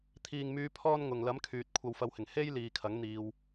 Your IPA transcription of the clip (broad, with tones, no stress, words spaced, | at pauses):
t̪ʰiː˨ŋmyː˧ pʰɔː˥n ŋʊ˨ŋ lɐ˨˥mkʰyː˨t̚ kʷʰɐ˧wfɐ˧whɪ˨˩ŋ he˥j liː˨˧kʰɐ˨˥ŋ n̪iː˧w